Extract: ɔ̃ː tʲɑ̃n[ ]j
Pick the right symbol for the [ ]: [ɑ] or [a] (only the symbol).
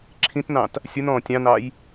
ɑ